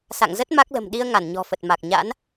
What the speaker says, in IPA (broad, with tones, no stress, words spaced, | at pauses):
sa̰˧˨ŋzə˦˥t̚ ma˦˥k̚lə̤˨˩mɗi˧ə̯ ŋa˧˩nɲɔ̤˨˩fə˨˩t̚ma˨˩k̚ ɲa̰˧˥n